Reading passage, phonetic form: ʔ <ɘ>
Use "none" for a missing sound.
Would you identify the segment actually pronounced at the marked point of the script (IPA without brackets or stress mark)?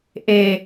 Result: e